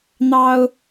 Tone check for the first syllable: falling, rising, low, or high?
high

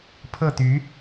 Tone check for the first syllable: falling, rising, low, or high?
falling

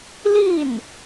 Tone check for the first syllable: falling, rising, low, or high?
falling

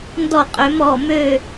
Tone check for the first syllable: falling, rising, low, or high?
falling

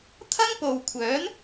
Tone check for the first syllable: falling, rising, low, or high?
high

